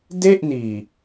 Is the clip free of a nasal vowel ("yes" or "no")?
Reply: yes